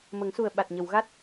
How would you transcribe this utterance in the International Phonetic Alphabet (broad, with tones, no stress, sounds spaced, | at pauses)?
m ə˨˩˦ ŋ s u˨˩ ə̯ ɓ a˨˩ t̚ ɲ ə˨˩˨ w ɣ a˦˥ t̚